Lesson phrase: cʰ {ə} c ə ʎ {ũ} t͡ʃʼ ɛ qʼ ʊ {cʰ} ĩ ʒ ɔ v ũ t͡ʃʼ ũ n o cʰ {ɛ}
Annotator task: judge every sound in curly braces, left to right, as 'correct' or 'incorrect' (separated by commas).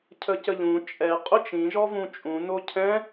correct, correct, incorrect, incorrect